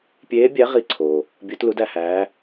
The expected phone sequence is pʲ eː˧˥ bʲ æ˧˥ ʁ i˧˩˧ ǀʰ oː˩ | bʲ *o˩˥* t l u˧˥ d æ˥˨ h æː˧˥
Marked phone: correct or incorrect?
incorrect